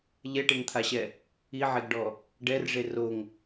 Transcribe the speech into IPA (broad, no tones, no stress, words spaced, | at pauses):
ʎɛʈeŋt̪ʰaɕɛ | iʕeɡɖɔ | ɖɛrʐe roŋ